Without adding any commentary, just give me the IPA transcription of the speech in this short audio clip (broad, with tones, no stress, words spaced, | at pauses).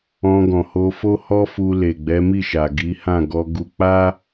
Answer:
ɔ̃˧ɡɔ̃˨ho˧ fo˦hɔ˦fu˧ le˨ɡ͡bɛ˨˦mi˦˨ʃa˨ ɡi˨˦hã˦˨ɡɔ˧ɡu˧ k͡pa˦